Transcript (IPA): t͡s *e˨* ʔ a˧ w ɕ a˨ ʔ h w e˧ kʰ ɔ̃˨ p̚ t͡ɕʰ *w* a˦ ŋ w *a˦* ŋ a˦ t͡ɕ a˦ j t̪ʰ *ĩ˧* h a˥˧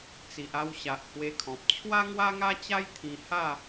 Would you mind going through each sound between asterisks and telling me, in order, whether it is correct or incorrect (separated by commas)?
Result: incorrect, correct, correct, correct